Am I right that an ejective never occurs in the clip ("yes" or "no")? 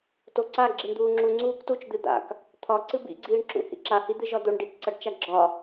yes